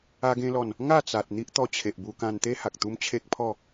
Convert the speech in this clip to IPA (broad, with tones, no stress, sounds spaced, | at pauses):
a˧ ɡ ẽ˧ l ɔ˨˩ n | ŋ a˥˧ t͡s a˨ t̚ n̪ i˦ ʔ t̪ ɔ˧ t͡ɕʰ e˨ ʔ b u˧ k ã˧ n t̪ e˦ h a˨ k̚ t̪ u˦ m t͡ɕʰ e˦ k̚ pʰ ɔ˥˧